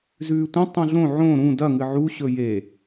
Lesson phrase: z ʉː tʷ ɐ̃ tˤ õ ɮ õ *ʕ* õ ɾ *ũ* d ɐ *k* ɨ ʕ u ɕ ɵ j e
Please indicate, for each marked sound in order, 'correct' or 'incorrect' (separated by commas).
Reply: correct, correct, incorrect